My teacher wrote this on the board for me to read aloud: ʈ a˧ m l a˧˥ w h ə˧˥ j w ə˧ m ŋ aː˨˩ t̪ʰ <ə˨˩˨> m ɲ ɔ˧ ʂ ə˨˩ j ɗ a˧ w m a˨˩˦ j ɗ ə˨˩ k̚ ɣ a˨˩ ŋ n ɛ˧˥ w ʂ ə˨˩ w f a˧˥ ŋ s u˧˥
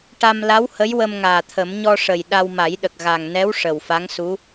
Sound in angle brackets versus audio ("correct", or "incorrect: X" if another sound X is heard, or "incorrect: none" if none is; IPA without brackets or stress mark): incorrect: ə˨˩˦